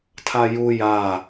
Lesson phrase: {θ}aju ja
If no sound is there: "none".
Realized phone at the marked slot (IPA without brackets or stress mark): tʰ